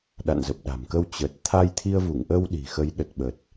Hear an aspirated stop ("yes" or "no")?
yes